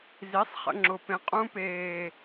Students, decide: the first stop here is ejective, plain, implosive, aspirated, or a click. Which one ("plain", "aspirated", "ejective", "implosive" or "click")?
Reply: click